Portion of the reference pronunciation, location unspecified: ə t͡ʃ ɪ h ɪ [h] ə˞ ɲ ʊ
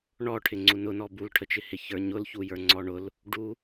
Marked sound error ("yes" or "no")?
yes